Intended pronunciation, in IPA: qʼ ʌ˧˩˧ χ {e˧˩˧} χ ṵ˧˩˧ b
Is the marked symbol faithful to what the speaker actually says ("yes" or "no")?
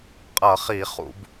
no